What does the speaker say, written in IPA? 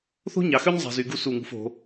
θ o̤˥ ɲ ɑ˩˧ x ø˥ ɲ zˤ ɑ̤˧ z y˧ ɡ u˥ s u˧˩ ŋ ṳ˧ f o̤˩˧

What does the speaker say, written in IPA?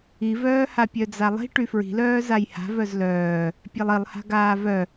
i v œː h a pʲ œ d͡z a lˠ i̤ ʈ y f ɹ i̤ l œː z a j h a̤ v œ z l œː | pʲ e lˠ i lˠ h a̤ ɡ aː v œ

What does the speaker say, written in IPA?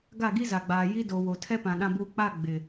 ɡ a˦˨ ɡ i˦ z a˨ ɡ͡b aː˨ j i˦ d o˨ w o˨ tʰ ɛ˦ p ã˨ ɗ ã˨ b uː˨ k͡p a˦˨ ɡ͡b ɪ˨

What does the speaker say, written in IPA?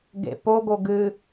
ɡ ḛ p o ɡ o ɡ ɨ

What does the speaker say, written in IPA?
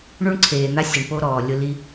ɳ u˦ ɳ ǀʰ eː˨ n̪ a˦ sʲ ɪ˨ ɳ p o˦ ɾ ɔː˨ lʲ ʊ˦ l i˦

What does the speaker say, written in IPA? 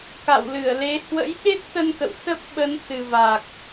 k a̰˧˨ w l ɨ˧˩ ə̯ l e˨˦ h w ə̰˧˥ j ɓ e˦˥ t̚ t̪ ə˧ n k ə̰˧˨ w s ə˦˥ p̚ ɓ ə˨˦ n s ɨ˨˩ v a˨˩ k̚

